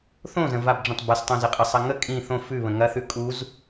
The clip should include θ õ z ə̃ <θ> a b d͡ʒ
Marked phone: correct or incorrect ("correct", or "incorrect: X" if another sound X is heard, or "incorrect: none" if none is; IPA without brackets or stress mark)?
incorrect: v